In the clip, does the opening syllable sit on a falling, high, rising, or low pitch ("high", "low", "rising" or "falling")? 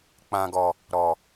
high